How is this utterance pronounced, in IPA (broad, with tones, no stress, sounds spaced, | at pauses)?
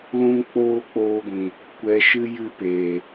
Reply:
l ũ˦ ŋ k͡p oː˦ k͡p oː˧ ɡʷ ĩ˨ | kʷ ɛ˧ ʃ ɨ˦ j ɨ˦ p eː˨